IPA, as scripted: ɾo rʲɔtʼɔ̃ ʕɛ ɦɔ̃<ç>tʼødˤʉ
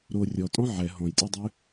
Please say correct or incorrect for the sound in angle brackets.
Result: incorrect